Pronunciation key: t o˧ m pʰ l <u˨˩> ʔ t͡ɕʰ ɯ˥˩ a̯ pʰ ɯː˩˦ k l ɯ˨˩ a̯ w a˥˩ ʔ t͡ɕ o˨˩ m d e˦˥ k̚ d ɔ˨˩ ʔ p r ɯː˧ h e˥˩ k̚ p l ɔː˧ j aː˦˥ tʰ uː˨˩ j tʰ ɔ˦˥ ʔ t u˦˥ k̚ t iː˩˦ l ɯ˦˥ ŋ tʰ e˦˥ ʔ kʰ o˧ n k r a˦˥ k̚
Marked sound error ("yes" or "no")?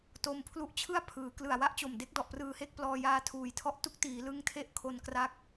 yes